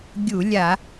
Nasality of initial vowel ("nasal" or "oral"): oral